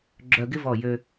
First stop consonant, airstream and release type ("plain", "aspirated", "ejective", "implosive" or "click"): click